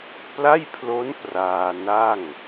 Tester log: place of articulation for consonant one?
labial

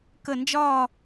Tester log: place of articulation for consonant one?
velar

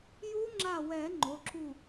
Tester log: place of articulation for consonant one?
palatal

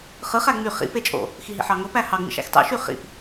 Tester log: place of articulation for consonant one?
uvular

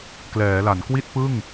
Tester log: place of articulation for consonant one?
velar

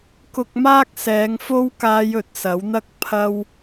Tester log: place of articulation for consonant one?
velar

